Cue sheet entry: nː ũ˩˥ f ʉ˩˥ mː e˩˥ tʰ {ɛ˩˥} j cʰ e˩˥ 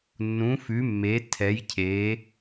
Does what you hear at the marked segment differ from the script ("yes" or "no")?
no